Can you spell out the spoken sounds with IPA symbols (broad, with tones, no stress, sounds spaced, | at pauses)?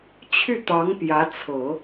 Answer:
t͡ɕʰ y˥˩ t̪ ɑ˧˥ ŋ p j ä˧˥ t͡sʰ ɤ˨˩˦